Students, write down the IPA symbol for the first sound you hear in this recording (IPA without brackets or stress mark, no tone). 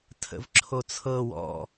tʰ